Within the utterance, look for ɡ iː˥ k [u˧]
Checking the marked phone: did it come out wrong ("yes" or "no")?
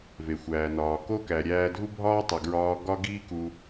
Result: no